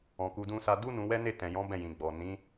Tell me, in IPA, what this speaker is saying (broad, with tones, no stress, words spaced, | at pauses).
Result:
ɔ̃˨ku˧dũ˦sa˦ du˦nũ˧ wɛ˦ne˦˨tɛ̃˨jɔ̃˨˦ bɛ̃˦˨jĩ˨ ɡ͡bɔ˨ nĩ˨˦